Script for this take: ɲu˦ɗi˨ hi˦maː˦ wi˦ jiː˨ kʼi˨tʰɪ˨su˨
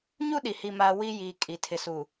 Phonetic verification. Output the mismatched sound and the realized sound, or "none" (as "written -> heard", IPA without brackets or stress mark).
none